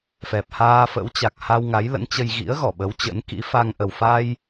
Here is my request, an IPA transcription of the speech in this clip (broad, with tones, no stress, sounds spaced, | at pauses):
f ɛ˨˩ p̚ h aː˧ f ə̰˧˥ w t͡ɕ a˨˩ k̚ h a˧ w ŋ a˨˦ j l ə̰˧˥ n t͡ɕ ə˧ j ɣ ḭ˧˥ ə̯ ɣ ɔ˧˩ ɓ ə˨˦ w t͡ɕ ə̰˧˥ n k ḭ˧˥ f a˧ ŋ ʔ ə˨˩ w f a˧ j